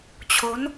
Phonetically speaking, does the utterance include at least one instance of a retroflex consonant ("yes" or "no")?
no